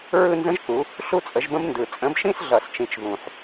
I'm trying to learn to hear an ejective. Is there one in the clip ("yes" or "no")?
yes